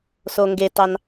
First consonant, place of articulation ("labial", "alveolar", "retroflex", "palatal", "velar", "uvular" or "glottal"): alveolar